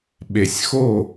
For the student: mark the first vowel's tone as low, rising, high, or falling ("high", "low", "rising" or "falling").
low